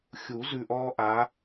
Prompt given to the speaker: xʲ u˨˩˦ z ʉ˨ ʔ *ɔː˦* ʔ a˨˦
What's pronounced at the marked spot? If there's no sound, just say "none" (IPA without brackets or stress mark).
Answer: ɔː˦